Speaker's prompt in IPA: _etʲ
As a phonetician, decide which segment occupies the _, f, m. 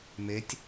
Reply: m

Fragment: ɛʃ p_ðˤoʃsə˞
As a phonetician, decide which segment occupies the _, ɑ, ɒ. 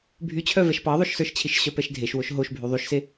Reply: ɑ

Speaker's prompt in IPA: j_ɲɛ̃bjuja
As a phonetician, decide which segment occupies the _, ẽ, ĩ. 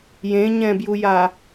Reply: ẽ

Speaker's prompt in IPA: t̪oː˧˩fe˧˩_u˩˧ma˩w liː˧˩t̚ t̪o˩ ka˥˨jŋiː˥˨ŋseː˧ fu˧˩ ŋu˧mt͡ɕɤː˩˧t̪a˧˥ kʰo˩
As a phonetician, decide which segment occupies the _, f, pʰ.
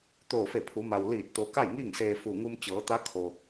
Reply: pʰ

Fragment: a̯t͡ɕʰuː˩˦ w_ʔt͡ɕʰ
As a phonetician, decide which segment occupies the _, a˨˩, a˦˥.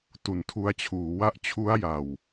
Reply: a˦˥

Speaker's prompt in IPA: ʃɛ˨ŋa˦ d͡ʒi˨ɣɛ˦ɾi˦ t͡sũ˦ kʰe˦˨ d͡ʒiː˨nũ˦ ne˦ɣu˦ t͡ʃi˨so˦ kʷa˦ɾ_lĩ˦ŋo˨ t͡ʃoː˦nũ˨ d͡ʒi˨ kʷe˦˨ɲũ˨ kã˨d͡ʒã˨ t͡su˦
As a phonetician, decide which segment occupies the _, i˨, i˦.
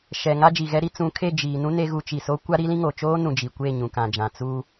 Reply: i˦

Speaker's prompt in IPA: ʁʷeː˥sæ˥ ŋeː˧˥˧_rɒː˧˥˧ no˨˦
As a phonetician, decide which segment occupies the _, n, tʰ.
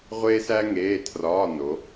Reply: tʰ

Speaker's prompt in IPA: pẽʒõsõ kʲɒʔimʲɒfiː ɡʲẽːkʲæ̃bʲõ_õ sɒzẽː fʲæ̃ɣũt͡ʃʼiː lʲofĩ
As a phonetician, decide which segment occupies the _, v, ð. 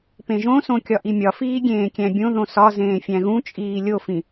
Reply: ð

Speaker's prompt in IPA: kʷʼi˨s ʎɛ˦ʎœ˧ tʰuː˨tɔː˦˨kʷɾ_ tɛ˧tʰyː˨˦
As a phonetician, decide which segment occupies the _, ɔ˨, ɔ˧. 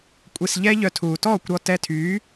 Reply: ɔ˧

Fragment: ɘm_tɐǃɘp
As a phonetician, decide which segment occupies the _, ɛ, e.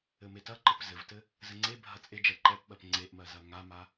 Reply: e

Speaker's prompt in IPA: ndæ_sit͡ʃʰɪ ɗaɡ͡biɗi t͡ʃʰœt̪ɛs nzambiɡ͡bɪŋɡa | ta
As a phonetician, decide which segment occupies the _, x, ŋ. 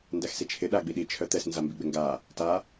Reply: x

